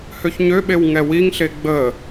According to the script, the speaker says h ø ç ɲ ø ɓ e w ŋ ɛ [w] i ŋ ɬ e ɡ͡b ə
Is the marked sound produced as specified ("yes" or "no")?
yes